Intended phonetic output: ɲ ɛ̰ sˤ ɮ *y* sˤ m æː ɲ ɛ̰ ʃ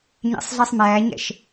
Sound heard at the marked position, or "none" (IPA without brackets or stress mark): i